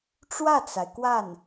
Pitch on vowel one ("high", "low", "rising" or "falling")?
falling